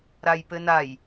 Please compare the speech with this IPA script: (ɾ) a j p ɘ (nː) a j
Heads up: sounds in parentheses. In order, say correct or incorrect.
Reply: correct, incorrect: n

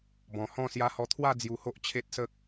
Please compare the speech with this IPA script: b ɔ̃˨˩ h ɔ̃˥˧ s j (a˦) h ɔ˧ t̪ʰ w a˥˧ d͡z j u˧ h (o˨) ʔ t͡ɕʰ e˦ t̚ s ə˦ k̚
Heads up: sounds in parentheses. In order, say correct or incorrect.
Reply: incorrect: a˧, incorrect: o˦

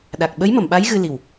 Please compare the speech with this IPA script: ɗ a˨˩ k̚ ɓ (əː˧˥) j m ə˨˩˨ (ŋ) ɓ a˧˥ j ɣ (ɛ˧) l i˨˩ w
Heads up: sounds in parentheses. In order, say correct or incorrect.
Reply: incorrect: ə˧˥, incorrect: m, incorrect: ɨ˧

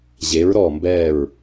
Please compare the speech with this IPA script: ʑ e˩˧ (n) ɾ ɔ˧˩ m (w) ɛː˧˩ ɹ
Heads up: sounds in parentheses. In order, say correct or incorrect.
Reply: incorrect: ɹ, incorrect: b

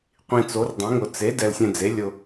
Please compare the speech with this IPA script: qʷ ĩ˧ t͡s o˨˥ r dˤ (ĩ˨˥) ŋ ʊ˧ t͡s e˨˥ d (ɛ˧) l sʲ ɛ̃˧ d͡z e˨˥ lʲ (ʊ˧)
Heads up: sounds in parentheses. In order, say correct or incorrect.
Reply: correct, correct, correct

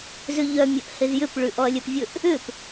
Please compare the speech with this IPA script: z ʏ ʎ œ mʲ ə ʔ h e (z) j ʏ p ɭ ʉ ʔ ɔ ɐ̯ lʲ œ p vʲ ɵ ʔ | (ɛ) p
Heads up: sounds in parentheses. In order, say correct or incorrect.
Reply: correct, incorrect: ʏ

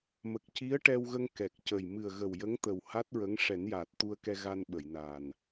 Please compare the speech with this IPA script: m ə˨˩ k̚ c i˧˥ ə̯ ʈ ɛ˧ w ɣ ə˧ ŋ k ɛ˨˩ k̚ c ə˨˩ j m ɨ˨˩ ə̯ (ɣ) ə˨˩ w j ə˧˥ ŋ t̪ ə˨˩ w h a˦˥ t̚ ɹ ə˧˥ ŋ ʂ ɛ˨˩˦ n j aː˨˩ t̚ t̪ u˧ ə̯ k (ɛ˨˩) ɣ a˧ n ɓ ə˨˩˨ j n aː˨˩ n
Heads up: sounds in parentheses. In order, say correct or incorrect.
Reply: correct, incorrect: ɛ˧

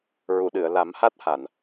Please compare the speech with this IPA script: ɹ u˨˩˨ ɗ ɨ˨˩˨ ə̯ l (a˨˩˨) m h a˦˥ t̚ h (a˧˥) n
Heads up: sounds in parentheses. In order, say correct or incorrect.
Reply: incorrect: a˨˩˦, incorrect: a˨˩˨

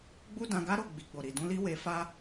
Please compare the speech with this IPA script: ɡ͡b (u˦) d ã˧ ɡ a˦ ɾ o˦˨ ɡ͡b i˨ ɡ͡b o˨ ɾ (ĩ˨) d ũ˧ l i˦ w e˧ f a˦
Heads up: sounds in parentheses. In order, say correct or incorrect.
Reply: correct, incorrect: i˨

